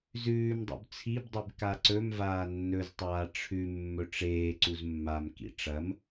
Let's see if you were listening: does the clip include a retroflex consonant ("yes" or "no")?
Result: yes